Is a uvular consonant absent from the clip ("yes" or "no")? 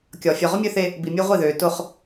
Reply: no